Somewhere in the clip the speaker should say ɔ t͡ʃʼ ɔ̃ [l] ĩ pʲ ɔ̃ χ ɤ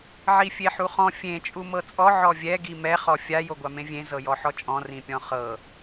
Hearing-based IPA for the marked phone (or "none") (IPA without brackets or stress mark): r